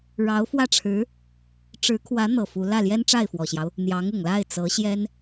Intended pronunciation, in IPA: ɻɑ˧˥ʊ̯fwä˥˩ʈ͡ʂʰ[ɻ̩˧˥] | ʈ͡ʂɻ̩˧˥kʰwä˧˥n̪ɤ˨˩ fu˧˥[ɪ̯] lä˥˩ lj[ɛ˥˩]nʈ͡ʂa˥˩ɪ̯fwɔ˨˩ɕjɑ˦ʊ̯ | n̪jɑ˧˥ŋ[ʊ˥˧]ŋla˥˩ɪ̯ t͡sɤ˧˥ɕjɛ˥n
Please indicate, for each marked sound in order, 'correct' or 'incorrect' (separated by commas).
correct, incorrect, incorrect, incorrect